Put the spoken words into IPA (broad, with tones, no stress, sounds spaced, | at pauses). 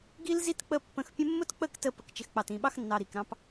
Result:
ɡ i˦ l z i˦ t k͡p ə˧ pː ə̃˧ x pʲ ə̃˦ mː ʊ˦ t k͡p ə˦˨ k t ə˧ p ə˨ k t͡ʃ ɪ˨ x k͡p ɑ˨ t ĩ˨ ɓ ɑ˧ x nː ɑ˨ ɾ i˨ k ɾ ɑ̃˧ p